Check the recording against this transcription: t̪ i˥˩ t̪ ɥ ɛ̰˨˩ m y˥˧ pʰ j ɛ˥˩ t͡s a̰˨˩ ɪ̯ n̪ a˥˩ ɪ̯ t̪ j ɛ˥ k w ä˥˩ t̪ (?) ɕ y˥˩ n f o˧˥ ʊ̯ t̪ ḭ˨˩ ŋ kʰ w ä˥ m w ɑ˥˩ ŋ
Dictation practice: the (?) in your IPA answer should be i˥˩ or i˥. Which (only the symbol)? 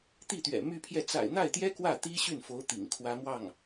i˥